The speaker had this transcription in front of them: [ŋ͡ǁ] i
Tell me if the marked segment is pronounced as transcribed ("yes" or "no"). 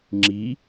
yes